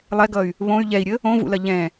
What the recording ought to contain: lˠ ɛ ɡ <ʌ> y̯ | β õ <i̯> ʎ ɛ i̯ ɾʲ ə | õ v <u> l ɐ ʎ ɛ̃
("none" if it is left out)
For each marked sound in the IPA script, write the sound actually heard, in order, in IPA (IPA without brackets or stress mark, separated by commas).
ʌ, y̯, ṵ